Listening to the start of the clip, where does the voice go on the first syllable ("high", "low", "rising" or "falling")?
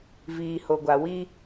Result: low